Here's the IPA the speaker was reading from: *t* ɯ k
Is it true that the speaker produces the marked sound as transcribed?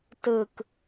yes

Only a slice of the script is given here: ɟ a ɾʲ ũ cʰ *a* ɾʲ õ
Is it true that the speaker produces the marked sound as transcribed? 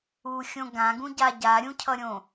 no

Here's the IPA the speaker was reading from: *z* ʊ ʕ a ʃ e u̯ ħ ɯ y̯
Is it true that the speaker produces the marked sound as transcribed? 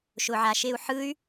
no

